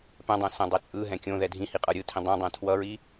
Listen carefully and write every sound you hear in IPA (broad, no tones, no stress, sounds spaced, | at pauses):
p ɛ̃ dˤ õ s ɛ̃ dˤ e t͡sʼ ɯ ɦ ɛ̃ kʲ õ ð ɛ dʱ ĩ h i qʼ ʌ ɾʲ ɯ tʰ ĩ dˤ ɛ̃ dˤ ɛ̃ tʰ w ʌ ɹ i